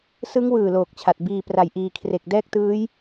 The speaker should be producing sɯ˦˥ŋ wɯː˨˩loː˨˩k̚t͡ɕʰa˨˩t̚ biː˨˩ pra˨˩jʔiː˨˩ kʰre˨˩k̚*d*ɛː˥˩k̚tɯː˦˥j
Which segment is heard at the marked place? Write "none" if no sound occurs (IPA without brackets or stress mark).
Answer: d